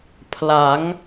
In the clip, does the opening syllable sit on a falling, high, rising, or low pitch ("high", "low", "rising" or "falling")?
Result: rising